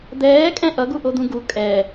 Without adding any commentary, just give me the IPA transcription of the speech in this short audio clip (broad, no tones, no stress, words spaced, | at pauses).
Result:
d̪ɛːkʼɛ̃ ʔʌɡuʔod̪ũ ɡu kʼɛ